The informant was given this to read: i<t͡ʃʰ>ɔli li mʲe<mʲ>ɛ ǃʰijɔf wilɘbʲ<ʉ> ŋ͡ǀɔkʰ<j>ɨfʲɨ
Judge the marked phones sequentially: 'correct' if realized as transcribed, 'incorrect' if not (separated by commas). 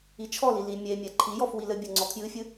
correct, correct, incorrect, correct